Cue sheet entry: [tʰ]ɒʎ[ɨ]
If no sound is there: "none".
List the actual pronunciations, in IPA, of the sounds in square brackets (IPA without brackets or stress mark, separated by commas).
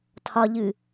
tʰ, ɨ